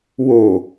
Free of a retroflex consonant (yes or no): yes